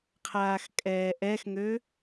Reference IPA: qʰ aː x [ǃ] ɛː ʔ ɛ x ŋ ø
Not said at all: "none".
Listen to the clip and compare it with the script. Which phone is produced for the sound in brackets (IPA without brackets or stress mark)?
kʼ